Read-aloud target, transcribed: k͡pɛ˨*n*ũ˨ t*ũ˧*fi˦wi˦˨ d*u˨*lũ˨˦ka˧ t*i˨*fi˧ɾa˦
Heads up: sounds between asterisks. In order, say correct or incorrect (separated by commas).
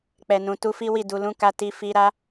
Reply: correct, incorrect, correct, incorrect